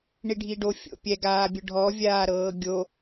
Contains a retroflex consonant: yes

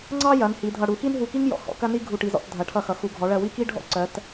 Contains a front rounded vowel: no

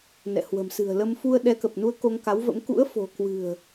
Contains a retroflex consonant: no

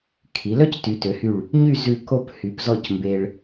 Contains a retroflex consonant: yes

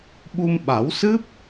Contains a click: no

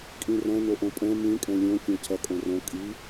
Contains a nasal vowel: yes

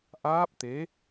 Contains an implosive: no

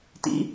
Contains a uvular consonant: no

